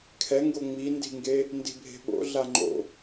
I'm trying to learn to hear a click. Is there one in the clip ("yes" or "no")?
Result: yes